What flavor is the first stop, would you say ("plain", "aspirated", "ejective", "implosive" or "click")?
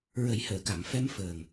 plain